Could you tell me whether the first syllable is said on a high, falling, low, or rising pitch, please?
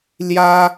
high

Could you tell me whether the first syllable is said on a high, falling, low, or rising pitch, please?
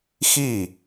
falling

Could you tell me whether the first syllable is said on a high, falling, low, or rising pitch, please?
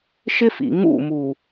high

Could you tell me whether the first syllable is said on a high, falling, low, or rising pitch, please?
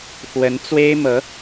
rising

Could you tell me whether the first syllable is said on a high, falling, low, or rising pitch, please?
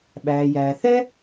low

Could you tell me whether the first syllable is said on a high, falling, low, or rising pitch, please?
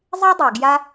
high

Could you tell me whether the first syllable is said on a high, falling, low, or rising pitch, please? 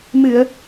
low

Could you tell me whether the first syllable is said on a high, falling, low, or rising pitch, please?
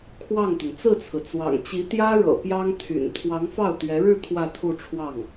falling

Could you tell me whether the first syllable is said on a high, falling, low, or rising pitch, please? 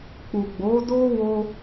low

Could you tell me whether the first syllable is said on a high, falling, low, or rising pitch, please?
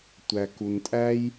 low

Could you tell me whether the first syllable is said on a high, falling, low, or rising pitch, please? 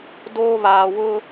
high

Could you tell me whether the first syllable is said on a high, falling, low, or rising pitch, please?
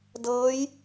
rising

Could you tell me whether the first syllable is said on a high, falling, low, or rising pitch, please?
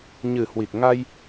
low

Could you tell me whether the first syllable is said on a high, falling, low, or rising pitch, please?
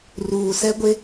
low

